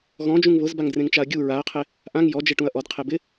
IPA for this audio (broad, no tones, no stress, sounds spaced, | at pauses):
ɣ ɔ̃ d͡ʒ ũ ŋ β ʊ z b a ŋ d r ẽ ŋ t͡ʃ a ɐ̯ ɡʲ u ɹ a ɐ̯ qʰ e | ʔ ã ŋ j ɔ d͡ʒ e ʈ ũ ɐ̯ ʔ ɔ d qʰ e b ɪ